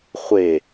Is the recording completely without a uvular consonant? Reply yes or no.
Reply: no